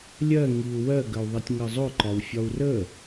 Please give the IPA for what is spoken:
lʲ ɜ ŋ i u̯ w ɜ ɡ ə u̯ ðˤ i tʲ ŋ ɜ zˤ ʊ ǃ ɒ w fʲ ɒ u̯ r ə

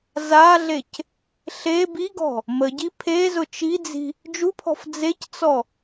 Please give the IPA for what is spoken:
z a ɮ e c | ɬ e b i ɡ ɔ̤ | m ə ɟ i pʰ e z ʊ t͡ʃ i d͡z i̤ | d͡ʒ u pʰ ɔ̤ f d͡z e c t͡s ɔ

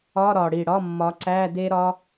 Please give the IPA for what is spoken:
ɒ˧˥˧ ɾ ɒ˨˩ ɽ i˨˩ ɽ ɒ˧˥˧ mː ɒ˨˦ ǀ æ˧˥˧ d e˦˥ ɾ ɒ˦˥

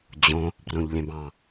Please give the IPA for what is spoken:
d͡ʑ õ | b r õ ʎ lʲ ɛ̃ b ɑ̃

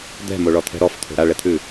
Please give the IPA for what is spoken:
d̪ ɛ̤ m o ɭ ɔ t̪ʰ ɛ̤ ɾ ɔ f t̪ʰ o̤ ɾ a ɭ ɛ t̪ʰ ʉ

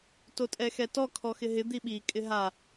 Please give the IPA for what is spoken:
t o tʼ ɛ x ɛ t ɔ kʰ ɔ x ɪ ɦ ɪ d̪ i ɓ i kʼ ɪ ɦ a

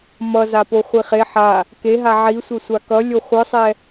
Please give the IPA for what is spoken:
m ʌ z a p o χʷ i χ e ħ a | k e ɦ a ʕ i sʷ ɛ sʷ a k ʌ lʲ o χʷ ɯ sˤ ɛ

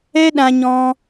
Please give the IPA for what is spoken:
ɛ˦ ɗ ã˧ ɲ ɔ̃˧

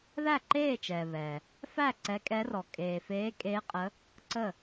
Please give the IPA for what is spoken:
ð æ˥˩ ǃ eː˥˩ t͡ʃ ɛː˩ β ɛ˩ | f æ˥˩ ǀ ɛ˨˦ kʼ ɛ˨˦ r ɔ˩ kʼ eː˩ f eː˨˦ kʼ eː˨˦ qʼ ə˨˦ | ǀ ə˥˩

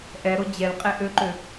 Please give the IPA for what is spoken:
ʔ ɛ ɾ o d͡ʑ ɛ l qʼ e ʔ ø ǃ ø

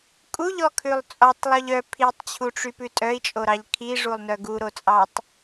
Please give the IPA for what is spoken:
kʼ u ʎ ɔ kʰ ʉ lˠ t͡sʼ ɔ tˤ lˠ o ʎ œ pʰ i tˤ t͡ɕʰ u ʈ͡ʂ y p ʉ tʼ œ i̯ t͡ʃʼ o ɾ ɑ ʎ kʰ i ʐ u lˠ n œ ɡ u ɾ o t͡sʼ ɑ tˤ

